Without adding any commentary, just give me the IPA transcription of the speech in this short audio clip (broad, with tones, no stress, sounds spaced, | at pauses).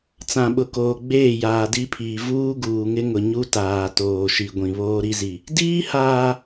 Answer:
t͡s ã˨ ɓ ʊ˨ k oː˨ ɡ͡b eː˦˨ j aː˨ d i˦ pʰ iː˨ v uː˦ ɡ uː˨ ŋ ɪ˦ ŋ ʊ˨ ɲ u˦ t aː˨ t oː˨ ʃ i˨ ɡʷ ĩ˨ β oː˦ ɾ i˦ z i˨ | d iː˦ h aː˨